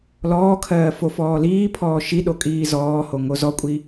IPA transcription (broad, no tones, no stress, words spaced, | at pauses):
lɔːkʰɜː fofɔːliːpʰɔː ʃiɗo kʼiːzɔːho ŋozɔkʷʼi